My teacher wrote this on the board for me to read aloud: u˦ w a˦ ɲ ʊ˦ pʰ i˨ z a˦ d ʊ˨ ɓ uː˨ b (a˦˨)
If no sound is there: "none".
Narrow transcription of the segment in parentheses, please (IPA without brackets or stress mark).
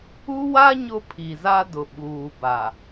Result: a˨